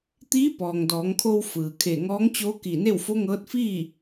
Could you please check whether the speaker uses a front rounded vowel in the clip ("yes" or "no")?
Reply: no